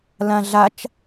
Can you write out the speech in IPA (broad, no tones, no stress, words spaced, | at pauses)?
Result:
lãɮat͡ʃ